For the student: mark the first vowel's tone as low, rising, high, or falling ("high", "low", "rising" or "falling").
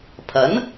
rising